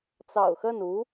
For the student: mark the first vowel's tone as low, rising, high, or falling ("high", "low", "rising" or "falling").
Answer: low